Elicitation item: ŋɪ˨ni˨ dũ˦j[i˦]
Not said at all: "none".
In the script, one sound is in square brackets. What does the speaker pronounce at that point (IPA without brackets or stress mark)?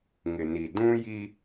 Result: i˦